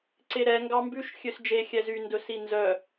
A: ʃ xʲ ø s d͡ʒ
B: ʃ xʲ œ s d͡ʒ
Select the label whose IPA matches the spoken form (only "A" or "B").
A